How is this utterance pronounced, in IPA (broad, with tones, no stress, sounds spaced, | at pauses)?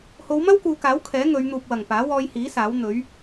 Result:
h o˨˧ w m ɐ˥ w k uː˨ k aː˨˥ w kʰ ɛː˨˥ ŋ ɵ˨˧ ɥ n̪ uː˨ p̚ w ɐ˨˩ ŋ p aː˨˥ w ɔː˧ j h iː˨˥ s aː˨˥ w n̪ ɵ˨˥ ɥ